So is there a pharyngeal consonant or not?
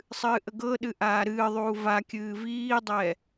no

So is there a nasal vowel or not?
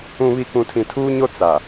yes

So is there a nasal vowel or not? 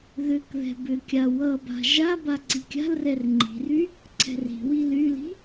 no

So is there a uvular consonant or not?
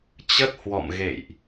no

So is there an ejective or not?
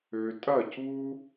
yes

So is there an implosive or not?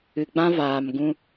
no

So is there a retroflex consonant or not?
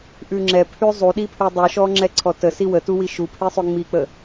no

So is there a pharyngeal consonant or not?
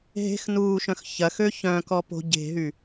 no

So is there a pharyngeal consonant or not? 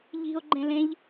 no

